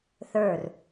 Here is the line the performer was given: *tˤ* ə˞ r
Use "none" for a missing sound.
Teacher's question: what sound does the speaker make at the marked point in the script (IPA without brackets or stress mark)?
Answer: θ